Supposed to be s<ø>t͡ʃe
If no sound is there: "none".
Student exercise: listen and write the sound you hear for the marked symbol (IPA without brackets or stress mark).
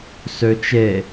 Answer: ø